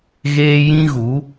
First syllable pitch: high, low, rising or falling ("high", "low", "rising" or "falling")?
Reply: high